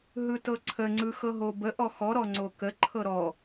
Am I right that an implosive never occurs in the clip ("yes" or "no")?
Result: yes